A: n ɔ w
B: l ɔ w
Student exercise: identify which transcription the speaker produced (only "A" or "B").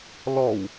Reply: B